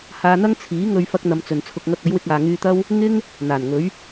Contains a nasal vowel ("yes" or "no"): no